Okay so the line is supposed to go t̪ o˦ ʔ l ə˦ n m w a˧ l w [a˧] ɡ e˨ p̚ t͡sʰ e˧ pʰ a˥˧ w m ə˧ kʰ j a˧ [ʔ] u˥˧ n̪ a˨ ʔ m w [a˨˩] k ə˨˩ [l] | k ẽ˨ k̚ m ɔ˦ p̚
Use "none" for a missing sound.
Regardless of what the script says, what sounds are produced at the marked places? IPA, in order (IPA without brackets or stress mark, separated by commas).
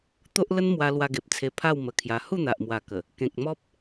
a˧, h, a˨˩, none